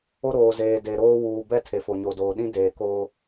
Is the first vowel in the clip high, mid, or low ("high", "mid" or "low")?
mid